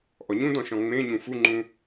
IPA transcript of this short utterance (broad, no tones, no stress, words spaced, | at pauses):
ʔɔɲũdɔ̃ ʃɔ̃ŋ͡mẽɲũ fuŋ͡ǃũ